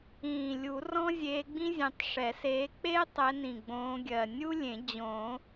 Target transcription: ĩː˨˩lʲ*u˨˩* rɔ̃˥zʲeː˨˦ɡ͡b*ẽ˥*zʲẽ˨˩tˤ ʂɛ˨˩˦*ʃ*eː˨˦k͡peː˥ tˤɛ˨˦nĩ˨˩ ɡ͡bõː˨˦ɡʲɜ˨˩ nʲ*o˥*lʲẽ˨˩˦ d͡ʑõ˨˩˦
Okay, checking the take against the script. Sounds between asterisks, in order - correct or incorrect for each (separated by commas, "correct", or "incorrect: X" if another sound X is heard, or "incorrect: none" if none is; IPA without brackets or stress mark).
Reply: incorrect: u˨˩˦, incorrect: ĩ˥, incorrect: s, incorrect: u˥